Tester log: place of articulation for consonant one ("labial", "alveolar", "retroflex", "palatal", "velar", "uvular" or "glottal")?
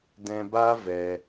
alveolar